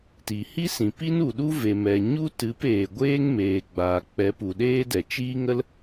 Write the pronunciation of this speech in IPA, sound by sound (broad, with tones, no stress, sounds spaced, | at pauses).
t i˨ h i˦ s ĩ˨ p i˦ n u˨ ɗ u˦ v e˨ m ɛ˨ ɲ u˦ t ɨ˨˦ p eː˨ ɡʷ eː˦ ŋ m eː˨ ɡ͡b aː˨ k͡p ɛ˨˦ p u˨ ɗ eː˦ d ɛ˨ t͡ʃ iː˦ ŋ ə˦ l